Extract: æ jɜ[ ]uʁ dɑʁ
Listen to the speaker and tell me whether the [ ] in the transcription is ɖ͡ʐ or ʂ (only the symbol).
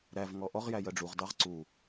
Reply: ɖ͡ʐ